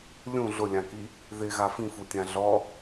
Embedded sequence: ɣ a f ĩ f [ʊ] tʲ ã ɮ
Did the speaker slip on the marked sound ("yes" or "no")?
yes